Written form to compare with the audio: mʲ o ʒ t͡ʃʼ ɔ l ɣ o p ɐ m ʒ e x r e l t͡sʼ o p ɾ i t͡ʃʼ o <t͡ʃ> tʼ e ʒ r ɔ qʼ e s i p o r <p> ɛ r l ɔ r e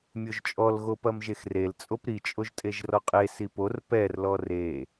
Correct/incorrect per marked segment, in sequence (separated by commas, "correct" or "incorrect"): incorrect, correct